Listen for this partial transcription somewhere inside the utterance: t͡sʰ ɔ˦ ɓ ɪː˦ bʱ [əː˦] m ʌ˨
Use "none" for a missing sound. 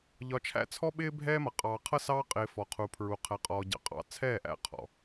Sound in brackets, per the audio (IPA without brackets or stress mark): ɛː˦